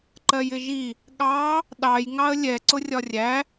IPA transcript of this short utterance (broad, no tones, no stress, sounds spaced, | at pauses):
ǃ ɜ j ɪ ʒ i | ɠ ɑ | ɗ ɑ j ŋ ɑ ə̯ lʲ ɛ ǀ ʊ rʲ ɒ rʲ æ